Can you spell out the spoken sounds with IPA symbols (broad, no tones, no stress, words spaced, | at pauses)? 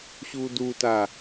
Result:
ɕuduta